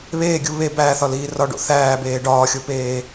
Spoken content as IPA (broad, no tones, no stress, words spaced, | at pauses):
βeːɡʲu βe bæːθɒliː rɒɖo̰ θæːbeː ɖɒːxʲopeː